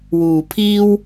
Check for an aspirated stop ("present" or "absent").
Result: present